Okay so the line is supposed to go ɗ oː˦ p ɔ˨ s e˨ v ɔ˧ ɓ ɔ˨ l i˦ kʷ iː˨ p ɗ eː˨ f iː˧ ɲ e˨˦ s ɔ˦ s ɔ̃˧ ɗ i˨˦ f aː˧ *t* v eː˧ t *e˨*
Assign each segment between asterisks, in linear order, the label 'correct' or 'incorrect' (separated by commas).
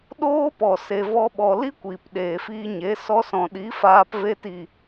incorrect, incorrect